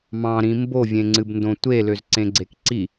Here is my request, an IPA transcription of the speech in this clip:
m ɑ̃ ɾ ĩ m b o vʲ ẽ ŋ͡ǀ ɨ b n d õ tʷ e l ø z ǀ ẽ ɡ͡ǀ e k ǀ i

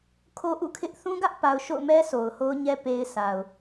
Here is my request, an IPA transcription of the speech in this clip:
kʰ o˦ ʔ ṵ˦˨ kʰ ɪ˦ ʔ θ ũ˦ ɡ ä˦ ʔ p a˨ ʊ̯ ʃ o̰˦˨ ʊ̯ m ɛ˦ sʰ o˨ ʊ̯ h o˦ ʊ̯ ɲ ɛ˦ p e˦ ɪ̯ sʰ a˨ ʊ̯

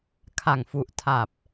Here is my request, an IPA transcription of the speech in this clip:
kʰ a˨˩ ŋ f u˨˩ ʔ tʰ a˨˩ p̚

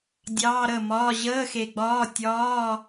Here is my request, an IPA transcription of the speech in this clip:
dʲ ɑː˧˥˧ ɾ əː˥˩ m ɒː˧˥˧ ʑ əː˧˥˧ x e˨˩ ɡ͡b ɒː˧˥˧ tʲ ɒː˧˥˧

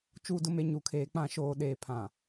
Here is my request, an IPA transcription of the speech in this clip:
t͡ʃ uː˨ d ʊ˨ m e˨ ɲ u˨ kʰ eː˨ k͡p ã˨ ʃ oː˨ ɗ eː˨ pʰ ã˨

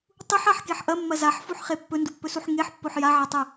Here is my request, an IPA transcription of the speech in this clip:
tˤ u ħ a ħ k e ħ ʔ ɐ mː ɐ z a ħ f u ħ χ e pː ɵ n d u pː ɵ s u ħ ŋ e ħ pː o ħ j a ʕ ɐ tˤ ɨ

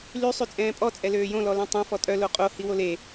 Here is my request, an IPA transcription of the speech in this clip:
l y sˤ y t͡sʼ ɛ̃ː pʼ ɔ t͡sʼ ɛ l øː j õ l ɔ l œ̃ tˤ õ f ɔ tʼ œ l o qʼ o h i w o l e

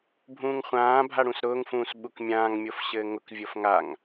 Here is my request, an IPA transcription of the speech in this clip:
bʱ ũː ŋ χʷ ãː bʱ a ɽ ũ s ɾ ʊː ŋ f ũː s ɓ u k mʲ ãː ŋ mʲ o f ɕ ɘː ŋ ʊ k vʲ o f ŋ a ŋ

